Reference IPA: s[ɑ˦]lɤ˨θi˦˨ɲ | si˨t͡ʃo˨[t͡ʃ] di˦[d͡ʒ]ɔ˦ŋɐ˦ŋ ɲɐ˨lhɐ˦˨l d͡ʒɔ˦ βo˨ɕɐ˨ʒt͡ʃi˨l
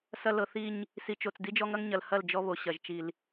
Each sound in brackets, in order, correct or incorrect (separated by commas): incorrect, incorrect, correct